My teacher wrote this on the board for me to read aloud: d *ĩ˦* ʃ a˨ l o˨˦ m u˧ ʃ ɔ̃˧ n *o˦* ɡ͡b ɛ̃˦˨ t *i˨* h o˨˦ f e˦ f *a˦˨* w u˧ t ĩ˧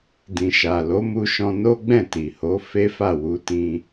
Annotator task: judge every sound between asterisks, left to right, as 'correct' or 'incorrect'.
incorrect: ĩ˨, correct, correct, correct

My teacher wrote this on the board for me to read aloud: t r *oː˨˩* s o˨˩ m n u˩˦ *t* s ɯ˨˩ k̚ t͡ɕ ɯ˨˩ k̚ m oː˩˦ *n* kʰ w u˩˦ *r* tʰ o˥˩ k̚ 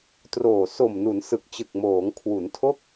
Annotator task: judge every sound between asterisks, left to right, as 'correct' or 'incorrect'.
correct, incorrect: n, incorrect: ŋ, incorrect: n

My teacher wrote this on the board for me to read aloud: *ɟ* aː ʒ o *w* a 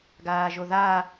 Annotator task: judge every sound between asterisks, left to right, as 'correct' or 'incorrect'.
incorrect: ɡ, incorrect: ð

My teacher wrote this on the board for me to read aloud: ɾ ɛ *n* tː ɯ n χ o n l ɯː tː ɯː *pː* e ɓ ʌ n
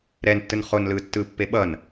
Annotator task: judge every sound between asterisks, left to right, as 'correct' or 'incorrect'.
correct, correct

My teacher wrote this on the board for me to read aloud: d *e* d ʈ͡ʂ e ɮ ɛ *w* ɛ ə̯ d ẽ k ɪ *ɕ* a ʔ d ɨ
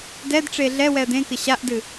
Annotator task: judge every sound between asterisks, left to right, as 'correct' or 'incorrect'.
incorrect: ɛ, correct, correct

